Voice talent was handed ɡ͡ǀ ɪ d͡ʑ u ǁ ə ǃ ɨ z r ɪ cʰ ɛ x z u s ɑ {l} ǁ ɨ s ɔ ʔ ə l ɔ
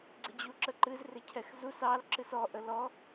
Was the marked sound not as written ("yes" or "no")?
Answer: no